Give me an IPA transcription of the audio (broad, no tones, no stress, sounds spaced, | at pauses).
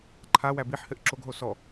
ǃʰ a w æ b i ħ h ɘ ʔ ǁ o ɡ ɦ o s ɔ